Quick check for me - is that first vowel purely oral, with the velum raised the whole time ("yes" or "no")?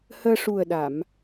yes